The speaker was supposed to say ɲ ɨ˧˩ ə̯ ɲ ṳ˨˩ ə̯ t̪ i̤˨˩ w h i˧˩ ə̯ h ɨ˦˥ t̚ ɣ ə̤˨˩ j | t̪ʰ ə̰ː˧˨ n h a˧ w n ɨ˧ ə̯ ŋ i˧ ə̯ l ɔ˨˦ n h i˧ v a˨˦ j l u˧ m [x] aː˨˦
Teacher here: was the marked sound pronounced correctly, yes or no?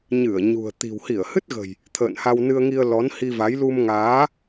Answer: no